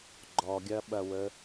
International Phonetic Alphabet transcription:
ɡ͡ǃɔɡʲɐɓɐwə

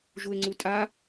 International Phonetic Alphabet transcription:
ʒue̯ŋ͡ǀutʼa

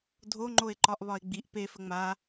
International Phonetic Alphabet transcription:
dʱoŋ͡ǃoe̯ǃɒʔβɒe̯ ɡ͡biʔ pefə ŋ͡ma

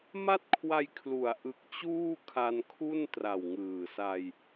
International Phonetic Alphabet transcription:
ma˥˩t̚kʰwa˧jkʰlu˩˦a̯ʔɯ˨˩k̚ t͡ɕuː˥˩kʰa˧nkʰu˥˩n tra˨˩wŋɯː˨˩sa˧j

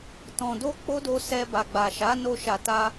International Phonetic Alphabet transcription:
tɔ̃˨do˧ k͡po˦do˧sɛ˧ ba˨ɡ͡ba˨ʃa˨˦no˧ ʃa˨ta˧

